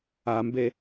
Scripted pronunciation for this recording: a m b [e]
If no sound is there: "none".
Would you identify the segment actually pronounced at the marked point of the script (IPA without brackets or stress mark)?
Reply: e